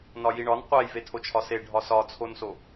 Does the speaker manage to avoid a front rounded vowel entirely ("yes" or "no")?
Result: yes